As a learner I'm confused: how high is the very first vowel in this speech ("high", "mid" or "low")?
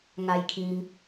low